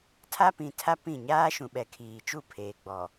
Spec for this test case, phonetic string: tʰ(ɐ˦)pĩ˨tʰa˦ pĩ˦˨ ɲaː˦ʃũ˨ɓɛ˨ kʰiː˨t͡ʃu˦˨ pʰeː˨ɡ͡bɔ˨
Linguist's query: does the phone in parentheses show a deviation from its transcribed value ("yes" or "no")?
yes